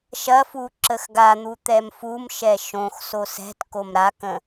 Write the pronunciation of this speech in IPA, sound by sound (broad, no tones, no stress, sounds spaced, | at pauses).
ʃ ɐ f u ǁ ə x ɡ a n̪ u t̪ ɛ m f u m ʃ ɛ ʃ õ x s o s ɛ̤ t k o m ɾ a k ə̃